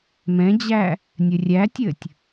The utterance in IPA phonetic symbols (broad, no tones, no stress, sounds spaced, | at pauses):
m ɛ̃ d͡ʑ æ | nʲ ɘ rʲ æ tʲ ɘ tʲ